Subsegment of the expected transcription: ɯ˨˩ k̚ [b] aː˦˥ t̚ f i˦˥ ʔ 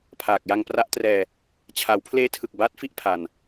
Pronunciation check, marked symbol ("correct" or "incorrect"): correct